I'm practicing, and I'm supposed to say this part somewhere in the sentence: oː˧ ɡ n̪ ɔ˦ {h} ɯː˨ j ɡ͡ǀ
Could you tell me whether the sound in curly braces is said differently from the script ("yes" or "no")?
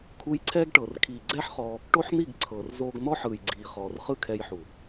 yes